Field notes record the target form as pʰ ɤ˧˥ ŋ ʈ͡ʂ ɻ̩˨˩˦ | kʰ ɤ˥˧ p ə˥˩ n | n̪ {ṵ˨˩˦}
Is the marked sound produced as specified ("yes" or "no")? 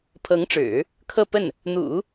yes